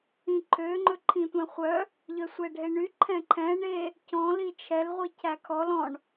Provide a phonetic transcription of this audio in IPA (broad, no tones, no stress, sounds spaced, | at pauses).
ĩ ǃʰ ø ŋ͡ǃ ɵ ǃʰ ĩ tʷ ɛ̃ χʷ œ | ʎ œ sʷ ɛ ɖʱ e ɳ y ǃʰ ɛ̃ ǃʰ ɛ̃ ɳ e | c ɔ̃ l i t͡ʃʰ ɛ l ʁʷ i cʰ æ kʰ ɔ l ɔ̃ ɳ